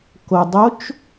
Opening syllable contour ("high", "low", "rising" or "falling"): low